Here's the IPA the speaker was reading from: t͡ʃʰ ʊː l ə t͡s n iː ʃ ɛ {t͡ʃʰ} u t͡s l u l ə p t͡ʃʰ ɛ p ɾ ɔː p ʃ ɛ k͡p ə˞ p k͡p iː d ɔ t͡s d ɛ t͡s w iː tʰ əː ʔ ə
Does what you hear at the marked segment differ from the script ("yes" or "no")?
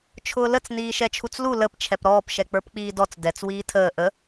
no